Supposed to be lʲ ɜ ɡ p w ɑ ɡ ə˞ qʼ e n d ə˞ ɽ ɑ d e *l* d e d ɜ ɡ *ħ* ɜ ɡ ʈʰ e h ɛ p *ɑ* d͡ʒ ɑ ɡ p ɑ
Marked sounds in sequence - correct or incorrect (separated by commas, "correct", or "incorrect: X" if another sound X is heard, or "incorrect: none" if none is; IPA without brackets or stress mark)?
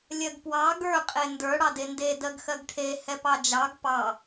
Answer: incorrect: n, incorrect: x, correct